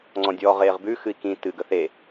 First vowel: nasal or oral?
nasal